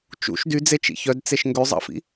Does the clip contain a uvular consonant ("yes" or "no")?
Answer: no